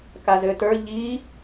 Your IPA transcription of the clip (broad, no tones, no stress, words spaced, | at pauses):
kazøtə˞ ʎi